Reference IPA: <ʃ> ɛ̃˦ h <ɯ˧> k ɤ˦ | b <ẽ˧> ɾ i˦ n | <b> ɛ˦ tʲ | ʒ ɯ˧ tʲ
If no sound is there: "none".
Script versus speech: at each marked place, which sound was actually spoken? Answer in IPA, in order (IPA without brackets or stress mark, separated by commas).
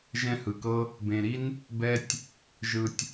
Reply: ʒ, ɯ˧, ẽ˧, b